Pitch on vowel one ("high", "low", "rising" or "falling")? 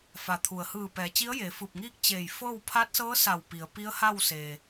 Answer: low